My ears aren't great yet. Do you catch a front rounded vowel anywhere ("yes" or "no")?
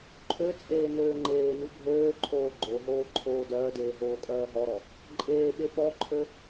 yes